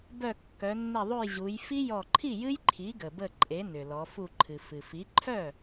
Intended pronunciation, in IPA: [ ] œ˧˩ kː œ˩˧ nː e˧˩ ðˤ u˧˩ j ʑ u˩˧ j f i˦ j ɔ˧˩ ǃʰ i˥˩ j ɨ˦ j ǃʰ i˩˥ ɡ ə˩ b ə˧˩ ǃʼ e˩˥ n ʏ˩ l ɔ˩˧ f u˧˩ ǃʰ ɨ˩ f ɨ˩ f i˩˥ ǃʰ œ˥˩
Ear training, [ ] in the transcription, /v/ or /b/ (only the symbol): b